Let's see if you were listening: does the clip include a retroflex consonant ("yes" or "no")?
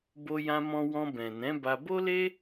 no